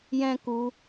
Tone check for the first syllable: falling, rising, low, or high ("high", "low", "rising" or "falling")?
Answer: high